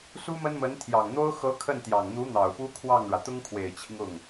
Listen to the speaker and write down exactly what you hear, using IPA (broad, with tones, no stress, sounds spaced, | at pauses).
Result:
s u˥ m ə˥ n m ə˧˥ n t̪ʰ j ɑ˨˩ ŋ n̪ o˥ ʊ̯ x ɤ˧˥ kʰ ə˥˩ n t̪ j ɑ˨˩ ŋ n̪ u˧˥ n̪ ɑ˨˩ ʊ̯ p u˥ kʰ w ɑ˥˩ ŋ ɻ ä˩ t̪ ʊ˥ ŋ kʰ w e˨˩ ɪ̯ t͡ɕʰ i˦ ŋ ʊ˥˩ ŋ